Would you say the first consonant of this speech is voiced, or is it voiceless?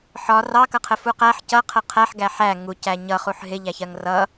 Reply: voiceless